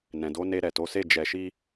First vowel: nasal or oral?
nasal